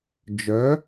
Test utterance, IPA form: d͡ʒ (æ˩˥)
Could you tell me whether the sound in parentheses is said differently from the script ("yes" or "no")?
yes